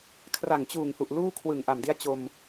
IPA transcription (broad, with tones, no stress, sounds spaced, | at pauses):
kʰ r a˨˩ ŋ t͡ɕ uː˨˩ ŋ h u˨˩ ʔ l uː˥˩ kʰ w ɯ˨˩ ŋ ʔ a˨˩ m d i˦˥ a̯ t͡ɕ o˧ m